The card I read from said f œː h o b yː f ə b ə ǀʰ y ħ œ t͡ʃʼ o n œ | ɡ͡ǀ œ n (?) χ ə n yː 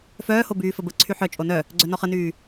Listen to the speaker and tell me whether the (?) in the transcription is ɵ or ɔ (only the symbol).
ɔ